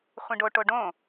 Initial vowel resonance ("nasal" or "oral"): nasal